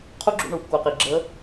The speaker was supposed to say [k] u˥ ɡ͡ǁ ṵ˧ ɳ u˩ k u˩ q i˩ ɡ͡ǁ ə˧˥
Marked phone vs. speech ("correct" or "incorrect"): incorrect